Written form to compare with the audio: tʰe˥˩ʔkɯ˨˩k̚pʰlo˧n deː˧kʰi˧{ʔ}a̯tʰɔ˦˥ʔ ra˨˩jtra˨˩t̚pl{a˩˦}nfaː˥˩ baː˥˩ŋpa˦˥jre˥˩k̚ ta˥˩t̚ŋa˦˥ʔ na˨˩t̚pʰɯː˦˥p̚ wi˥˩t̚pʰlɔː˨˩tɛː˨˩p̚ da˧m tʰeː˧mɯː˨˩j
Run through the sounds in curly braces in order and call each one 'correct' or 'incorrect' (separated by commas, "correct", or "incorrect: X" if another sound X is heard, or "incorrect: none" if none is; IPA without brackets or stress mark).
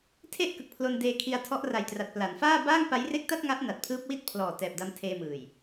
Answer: incorrect: none, correct